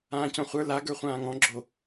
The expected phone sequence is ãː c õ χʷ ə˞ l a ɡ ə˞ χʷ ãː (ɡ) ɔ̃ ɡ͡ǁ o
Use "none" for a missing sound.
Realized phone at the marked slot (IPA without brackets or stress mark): ŋ